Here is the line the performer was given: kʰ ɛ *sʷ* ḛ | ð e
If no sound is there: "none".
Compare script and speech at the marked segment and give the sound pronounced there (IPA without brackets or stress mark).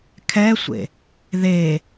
sʷ